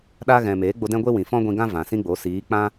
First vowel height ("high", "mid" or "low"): low